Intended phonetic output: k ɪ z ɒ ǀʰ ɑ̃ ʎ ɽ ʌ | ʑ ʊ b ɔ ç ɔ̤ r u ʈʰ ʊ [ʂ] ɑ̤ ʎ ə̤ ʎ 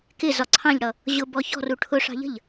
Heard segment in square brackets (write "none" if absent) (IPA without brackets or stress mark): ʂ